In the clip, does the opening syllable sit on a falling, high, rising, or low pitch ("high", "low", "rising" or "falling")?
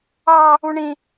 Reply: high